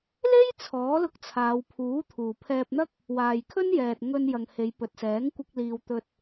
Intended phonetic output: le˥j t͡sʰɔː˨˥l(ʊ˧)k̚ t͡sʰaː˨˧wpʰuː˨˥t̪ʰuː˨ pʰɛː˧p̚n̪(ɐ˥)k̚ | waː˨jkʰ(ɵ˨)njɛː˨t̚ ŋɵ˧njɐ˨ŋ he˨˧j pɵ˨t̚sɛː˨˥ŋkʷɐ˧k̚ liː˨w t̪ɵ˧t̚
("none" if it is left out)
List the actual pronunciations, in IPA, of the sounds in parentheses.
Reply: ʊ˧, ɐ˥, ɵ˥

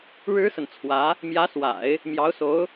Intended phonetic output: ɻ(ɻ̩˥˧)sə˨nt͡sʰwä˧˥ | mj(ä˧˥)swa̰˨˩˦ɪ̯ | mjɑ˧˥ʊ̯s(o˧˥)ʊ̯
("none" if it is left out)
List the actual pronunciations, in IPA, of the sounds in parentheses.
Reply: ɻ̩˥, ä˧˥, o˧˥

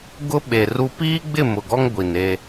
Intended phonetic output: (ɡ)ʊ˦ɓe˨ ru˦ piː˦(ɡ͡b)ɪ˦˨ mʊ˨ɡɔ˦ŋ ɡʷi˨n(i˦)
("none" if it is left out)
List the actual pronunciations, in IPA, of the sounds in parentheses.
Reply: ɡ, ɡ͡b, e˦

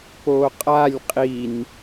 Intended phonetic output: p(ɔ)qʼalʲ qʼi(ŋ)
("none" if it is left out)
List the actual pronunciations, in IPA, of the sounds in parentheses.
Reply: o, n

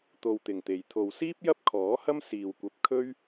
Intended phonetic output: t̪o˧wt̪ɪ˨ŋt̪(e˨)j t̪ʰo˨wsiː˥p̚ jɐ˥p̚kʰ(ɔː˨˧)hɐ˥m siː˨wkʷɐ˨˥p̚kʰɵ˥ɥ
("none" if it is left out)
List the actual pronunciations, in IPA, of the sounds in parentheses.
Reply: e˨, ɔː˨˥

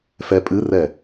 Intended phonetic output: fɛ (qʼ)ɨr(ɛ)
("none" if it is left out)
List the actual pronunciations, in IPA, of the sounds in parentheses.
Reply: pʼ, ɛ

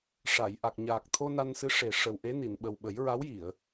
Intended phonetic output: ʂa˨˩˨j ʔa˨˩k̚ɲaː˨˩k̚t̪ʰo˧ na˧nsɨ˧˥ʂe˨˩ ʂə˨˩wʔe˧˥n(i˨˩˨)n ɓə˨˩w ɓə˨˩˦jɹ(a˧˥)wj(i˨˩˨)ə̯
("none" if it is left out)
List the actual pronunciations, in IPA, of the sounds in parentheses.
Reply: i˨˩˨, a˧˥, i˨˩˨

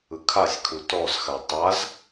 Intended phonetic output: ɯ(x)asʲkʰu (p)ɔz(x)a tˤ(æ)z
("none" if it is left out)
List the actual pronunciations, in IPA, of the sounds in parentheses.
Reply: kʰ, t, x, a

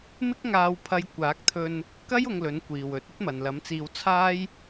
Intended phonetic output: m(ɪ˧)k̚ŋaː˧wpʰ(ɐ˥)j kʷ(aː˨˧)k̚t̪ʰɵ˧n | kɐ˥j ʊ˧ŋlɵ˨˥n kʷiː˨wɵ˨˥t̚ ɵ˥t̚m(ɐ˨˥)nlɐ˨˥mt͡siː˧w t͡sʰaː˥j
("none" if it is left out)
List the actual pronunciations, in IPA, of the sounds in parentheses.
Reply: ɪ˥, ɐ˧, aː˨˥, ɐ˨

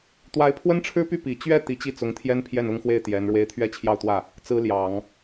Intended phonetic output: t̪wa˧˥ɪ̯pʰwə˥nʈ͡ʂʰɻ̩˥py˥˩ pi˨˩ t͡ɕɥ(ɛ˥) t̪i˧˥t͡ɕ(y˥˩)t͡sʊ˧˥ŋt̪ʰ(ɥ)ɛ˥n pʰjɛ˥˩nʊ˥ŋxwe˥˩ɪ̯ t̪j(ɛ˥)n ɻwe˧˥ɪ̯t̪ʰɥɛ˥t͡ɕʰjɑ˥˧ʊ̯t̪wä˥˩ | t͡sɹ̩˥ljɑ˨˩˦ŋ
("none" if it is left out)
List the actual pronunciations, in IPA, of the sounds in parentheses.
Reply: ɛ˥˩, i˥˩, j, ɛ˧˥

